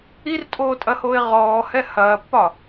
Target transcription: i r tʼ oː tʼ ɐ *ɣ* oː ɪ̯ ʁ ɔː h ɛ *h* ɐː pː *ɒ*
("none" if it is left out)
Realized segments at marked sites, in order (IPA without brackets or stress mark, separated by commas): h, h, ɒ